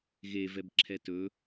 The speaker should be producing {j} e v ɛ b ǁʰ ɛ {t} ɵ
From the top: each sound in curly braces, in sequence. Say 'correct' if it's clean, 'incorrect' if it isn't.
incorrect, correct

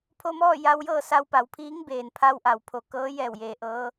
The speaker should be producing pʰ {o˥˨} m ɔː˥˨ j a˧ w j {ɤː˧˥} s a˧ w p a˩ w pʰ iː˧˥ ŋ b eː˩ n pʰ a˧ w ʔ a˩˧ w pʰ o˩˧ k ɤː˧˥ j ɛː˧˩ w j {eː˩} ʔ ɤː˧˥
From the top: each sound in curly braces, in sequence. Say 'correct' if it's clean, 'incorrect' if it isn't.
incorrect, incorrect, correct

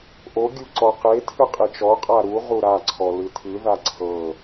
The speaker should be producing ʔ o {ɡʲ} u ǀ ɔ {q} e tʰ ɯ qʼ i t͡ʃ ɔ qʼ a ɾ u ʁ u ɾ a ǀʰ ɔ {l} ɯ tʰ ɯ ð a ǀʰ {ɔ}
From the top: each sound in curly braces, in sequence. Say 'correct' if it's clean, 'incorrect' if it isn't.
correct, correct, correct, incorrect

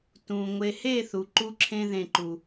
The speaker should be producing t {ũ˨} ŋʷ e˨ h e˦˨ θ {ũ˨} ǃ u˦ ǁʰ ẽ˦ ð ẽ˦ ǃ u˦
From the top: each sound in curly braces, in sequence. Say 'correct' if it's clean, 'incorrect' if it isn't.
correct, incorrect

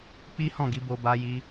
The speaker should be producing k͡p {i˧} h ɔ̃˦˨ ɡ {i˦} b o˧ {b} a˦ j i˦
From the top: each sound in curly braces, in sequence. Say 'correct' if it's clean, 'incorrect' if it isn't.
incorrect, incorrect, correct

